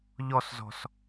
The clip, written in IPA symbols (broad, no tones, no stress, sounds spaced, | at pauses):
ʎ ɔ s z ɔ̤ s